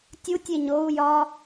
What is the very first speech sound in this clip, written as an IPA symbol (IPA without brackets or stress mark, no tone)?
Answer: tʲ